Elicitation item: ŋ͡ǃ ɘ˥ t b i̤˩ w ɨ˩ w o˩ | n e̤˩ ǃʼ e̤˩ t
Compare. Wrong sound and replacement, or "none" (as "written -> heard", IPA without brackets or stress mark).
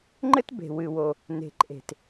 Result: i̤˩ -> e̤˩